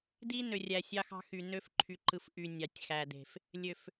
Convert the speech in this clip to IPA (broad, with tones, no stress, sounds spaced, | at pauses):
d i˦ n ø˨ rʲ æ˨ sʲ ɑ˦ x ɑ̤˦ x y˨ n ø˦ f ǃʰ y˨ ǃ ɯ˨ f ʔ y˨ nʲ ɑ˨ tʲ x æ˨ d e̤˨ f | lʲ ø˨ f